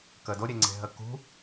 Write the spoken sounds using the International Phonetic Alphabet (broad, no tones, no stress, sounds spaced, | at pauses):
k ə d o ɾʲ e ŋ͡ǀ e̤ ɦ ə k ṳ